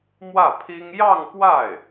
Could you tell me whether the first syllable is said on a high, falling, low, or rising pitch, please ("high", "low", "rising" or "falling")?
falling